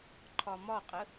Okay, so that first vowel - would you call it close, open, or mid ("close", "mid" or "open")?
open